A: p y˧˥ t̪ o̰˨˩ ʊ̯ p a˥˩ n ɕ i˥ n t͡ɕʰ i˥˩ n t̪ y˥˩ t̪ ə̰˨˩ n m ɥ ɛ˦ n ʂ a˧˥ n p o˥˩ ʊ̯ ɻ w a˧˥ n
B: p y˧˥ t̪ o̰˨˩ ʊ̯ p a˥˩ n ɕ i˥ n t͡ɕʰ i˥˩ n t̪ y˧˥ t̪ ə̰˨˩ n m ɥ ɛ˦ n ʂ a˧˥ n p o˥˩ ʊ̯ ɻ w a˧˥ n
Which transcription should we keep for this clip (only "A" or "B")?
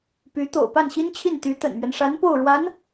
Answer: B